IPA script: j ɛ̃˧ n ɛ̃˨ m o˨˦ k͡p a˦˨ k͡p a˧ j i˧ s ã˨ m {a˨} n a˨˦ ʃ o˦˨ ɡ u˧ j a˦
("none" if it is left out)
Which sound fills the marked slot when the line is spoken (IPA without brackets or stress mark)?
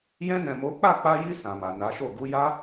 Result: a˨